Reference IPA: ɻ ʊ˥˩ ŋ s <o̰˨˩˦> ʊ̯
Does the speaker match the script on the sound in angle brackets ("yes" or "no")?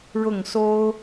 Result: no